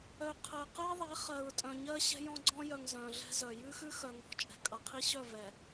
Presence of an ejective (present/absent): present